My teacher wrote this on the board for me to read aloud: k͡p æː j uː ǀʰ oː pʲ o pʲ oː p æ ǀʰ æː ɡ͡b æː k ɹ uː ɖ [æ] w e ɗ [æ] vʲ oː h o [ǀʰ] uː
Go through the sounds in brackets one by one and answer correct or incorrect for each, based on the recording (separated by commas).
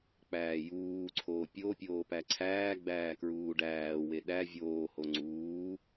incorrect, correct, incorrect